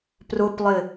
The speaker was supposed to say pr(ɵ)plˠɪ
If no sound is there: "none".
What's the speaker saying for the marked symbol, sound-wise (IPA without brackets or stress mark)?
ʊ